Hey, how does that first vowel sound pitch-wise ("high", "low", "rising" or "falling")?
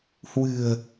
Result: low